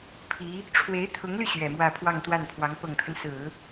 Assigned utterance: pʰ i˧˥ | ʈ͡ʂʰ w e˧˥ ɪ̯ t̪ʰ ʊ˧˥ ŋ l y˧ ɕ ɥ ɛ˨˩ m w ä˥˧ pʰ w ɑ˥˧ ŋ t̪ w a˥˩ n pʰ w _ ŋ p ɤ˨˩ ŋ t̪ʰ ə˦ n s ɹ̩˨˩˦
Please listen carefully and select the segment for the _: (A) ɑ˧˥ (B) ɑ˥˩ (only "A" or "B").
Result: A